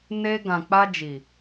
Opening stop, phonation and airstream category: plain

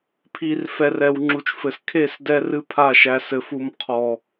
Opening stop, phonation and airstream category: aspirated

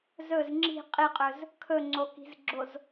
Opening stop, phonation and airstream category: click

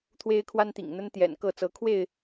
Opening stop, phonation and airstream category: aspirated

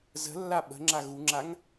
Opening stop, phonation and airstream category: implosive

